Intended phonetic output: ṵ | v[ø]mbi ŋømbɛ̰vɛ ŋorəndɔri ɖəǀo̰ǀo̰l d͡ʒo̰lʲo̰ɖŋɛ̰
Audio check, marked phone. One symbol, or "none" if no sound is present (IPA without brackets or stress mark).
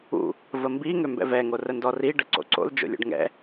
ə